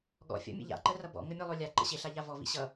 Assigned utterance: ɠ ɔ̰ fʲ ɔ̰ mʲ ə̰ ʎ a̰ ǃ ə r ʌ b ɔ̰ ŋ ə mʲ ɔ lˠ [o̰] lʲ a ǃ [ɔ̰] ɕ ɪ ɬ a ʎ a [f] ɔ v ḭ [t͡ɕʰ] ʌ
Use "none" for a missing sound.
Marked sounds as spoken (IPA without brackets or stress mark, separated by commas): o, ə̰, v, ɕ